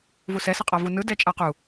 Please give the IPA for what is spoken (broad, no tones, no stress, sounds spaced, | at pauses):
v u s ɛ s ʌ qʼ a v u n ɯ d ɛ t͡ʃʼ a q u